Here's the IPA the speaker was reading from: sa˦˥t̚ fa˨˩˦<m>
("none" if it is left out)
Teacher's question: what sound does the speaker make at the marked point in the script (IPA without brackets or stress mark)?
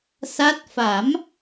m